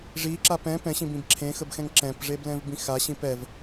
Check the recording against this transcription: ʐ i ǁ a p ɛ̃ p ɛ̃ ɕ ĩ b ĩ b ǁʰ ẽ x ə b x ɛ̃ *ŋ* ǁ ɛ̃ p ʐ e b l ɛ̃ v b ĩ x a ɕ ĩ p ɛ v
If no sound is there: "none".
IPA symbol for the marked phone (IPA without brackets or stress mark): ŋ